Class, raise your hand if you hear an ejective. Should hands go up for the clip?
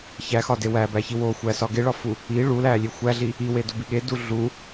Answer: no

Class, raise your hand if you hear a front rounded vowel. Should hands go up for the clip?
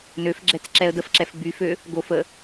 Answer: yes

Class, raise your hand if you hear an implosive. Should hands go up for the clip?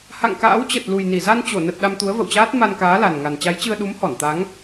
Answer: yes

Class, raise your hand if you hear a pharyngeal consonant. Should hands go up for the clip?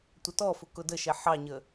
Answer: yes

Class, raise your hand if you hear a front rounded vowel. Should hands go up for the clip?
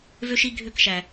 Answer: yes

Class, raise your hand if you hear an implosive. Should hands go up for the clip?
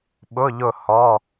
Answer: yes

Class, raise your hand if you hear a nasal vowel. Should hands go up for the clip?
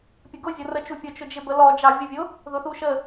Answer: no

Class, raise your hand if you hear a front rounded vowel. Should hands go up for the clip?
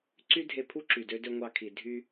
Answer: yes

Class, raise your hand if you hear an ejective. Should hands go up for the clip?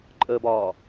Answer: yes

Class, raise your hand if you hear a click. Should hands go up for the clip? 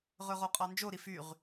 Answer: no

